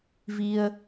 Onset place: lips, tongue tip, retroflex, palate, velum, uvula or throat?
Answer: lips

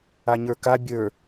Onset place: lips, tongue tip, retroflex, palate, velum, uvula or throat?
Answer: palate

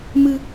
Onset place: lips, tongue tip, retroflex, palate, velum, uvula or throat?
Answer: lips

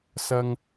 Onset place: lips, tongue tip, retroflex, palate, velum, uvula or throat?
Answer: tongue tip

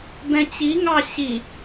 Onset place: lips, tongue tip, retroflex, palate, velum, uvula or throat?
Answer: lips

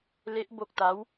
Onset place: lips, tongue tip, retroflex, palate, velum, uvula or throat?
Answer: tongue tip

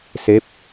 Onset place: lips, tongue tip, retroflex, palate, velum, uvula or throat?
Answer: tongue tip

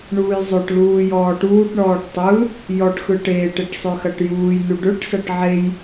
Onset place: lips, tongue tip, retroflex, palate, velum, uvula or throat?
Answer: retroflex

